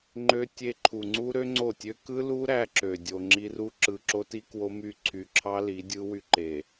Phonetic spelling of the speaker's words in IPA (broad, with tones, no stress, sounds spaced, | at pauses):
ŋ͡ǃ ø˦ tʲ e˦ ǃʰ u˨ ŋ͡ǀ u˦ ɾ ø˦ ŋ͡ǀ o˦˨ tʲ ø˦ k ɯ˦ l u˦ ɾ æ˦ ǁ ø˨ dʲ o˨ ŋ͡ǁ i˦ r u˦ ǁ ɯ˨ ǁ o˦ t i˦ k w o˦ m y˦˨ ǀʰ y˨ ǁʰ ɑ˦ l i˨˦ dʲ ɯ˦ w y˦ ǃ e˨